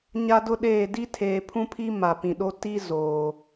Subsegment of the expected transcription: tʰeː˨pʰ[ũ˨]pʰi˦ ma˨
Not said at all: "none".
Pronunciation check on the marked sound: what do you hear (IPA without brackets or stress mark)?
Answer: ũ˦